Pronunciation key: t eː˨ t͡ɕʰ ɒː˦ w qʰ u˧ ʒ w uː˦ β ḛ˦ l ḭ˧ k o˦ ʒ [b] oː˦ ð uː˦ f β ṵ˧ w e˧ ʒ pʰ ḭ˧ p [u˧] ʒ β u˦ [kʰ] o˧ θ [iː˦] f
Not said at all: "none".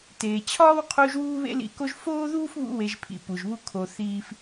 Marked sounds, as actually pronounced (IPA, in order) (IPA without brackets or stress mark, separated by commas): f, u˨, kʰ, iː˦